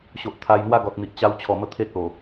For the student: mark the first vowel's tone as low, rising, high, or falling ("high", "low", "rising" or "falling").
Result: low